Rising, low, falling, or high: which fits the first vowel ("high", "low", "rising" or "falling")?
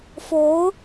rising